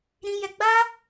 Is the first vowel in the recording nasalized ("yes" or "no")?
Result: yes